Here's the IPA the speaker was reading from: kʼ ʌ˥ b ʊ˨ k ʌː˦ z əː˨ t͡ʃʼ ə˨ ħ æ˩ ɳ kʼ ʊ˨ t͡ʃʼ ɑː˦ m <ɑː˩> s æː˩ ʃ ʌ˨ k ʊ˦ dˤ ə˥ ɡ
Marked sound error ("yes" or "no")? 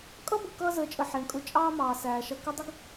no